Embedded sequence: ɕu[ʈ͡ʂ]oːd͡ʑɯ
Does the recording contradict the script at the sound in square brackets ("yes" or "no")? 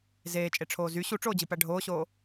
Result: no